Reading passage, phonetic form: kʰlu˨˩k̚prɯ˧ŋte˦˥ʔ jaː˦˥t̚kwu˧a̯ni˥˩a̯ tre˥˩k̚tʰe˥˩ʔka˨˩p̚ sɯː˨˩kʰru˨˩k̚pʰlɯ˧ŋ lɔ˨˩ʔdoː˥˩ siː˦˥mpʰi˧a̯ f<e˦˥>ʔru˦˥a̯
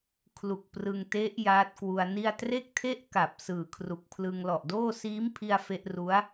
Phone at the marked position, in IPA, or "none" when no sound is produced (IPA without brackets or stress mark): e˦˥